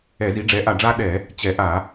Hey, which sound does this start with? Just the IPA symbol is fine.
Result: ɛ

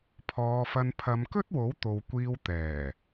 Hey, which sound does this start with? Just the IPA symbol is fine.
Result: pʰ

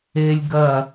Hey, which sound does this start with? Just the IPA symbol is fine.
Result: e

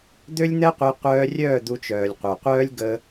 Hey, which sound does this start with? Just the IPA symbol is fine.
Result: d̪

